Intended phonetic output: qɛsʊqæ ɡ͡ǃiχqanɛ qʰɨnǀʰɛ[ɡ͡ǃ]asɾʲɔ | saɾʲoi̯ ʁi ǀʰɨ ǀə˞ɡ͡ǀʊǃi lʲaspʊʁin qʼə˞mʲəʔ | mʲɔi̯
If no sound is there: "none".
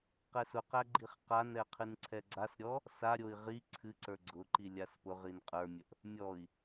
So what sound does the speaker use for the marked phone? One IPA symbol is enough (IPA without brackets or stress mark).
ɡ͡ǀ